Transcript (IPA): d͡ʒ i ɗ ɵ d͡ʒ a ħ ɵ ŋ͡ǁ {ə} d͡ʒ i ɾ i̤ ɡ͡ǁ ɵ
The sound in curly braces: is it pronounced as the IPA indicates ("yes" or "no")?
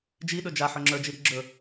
no